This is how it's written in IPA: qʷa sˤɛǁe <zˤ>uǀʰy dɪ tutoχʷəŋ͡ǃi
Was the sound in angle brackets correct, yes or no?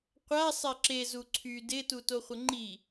no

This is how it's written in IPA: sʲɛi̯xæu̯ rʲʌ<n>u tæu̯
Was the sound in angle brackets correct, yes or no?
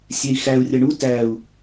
no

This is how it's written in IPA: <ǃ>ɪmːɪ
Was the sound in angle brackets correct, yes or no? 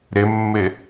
no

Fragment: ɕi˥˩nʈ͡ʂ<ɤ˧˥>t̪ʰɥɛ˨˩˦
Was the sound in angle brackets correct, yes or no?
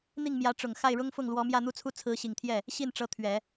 yes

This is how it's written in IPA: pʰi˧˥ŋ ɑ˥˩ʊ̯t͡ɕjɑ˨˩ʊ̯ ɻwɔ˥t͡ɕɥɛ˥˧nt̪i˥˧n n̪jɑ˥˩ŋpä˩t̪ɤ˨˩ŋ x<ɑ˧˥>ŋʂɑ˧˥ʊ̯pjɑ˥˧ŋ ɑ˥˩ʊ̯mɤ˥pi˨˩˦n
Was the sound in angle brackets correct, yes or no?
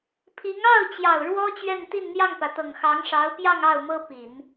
yes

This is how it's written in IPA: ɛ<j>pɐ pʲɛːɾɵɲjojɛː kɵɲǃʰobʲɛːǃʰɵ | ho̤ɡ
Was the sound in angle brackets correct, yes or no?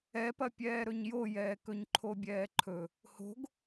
no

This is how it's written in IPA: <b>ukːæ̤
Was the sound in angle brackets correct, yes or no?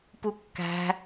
no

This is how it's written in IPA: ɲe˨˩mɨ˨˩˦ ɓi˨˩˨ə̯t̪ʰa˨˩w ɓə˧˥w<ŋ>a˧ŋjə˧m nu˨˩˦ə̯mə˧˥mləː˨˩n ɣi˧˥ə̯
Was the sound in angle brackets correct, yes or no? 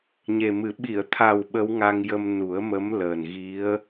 yes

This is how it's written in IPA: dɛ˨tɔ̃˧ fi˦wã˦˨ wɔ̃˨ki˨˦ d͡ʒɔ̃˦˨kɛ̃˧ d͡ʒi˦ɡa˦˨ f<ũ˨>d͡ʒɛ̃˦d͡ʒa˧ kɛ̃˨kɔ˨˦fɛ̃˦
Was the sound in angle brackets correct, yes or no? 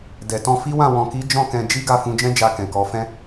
no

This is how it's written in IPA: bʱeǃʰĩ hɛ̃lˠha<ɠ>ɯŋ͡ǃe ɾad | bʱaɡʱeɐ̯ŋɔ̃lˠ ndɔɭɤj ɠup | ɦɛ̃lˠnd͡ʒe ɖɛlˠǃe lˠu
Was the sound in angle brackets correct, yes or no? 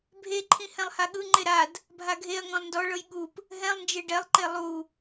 yes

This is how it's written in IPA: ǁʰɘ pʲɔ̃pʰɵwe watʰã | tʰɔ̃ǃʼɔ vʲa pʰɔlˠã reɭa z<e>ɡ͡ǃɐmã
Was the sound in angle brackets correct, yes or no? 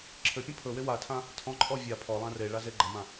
yes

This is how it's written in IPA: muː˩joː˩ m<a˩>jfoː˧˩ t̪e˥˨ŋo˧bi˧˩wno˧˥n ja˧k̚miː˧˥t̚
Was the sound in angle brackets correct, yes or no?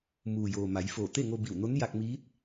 no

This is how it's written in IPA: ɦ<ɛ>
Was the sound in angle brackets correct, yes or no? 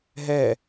yes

